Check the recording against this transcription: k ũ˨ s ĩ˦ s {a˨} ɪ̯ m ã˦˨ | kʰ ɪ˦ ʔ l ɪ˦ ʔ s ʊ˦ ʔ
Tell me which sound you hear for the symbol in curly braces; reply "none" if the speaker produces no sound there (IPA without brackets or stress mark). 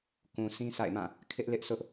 a̰˦˨